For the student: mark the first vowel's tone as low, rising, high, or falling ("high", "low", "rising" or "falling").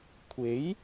rising